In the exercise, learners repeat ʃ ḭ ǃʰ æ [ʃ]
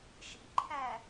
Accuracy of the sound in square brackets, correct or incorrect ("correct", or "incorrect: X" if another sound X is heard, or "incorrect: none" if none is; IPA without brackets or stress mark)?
incorrect: none